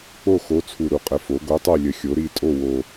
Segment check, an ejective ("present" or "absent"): present